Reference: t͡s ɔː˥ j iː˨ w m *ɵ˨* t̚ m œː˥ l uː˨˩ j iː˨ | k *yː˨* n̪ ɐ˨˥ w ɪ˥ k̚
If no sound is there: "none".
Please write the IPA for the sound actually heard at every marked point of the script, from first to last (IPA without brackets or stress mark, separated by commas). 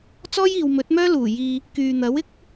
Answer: ɵ˨˥, yː˨